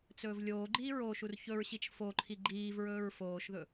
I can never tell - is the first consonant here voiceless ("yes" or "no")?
yes